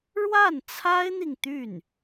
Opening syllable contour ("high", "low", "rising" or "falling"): falling